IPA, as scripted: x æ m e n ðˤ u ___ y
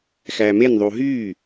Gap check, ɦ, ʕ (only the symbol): ɦ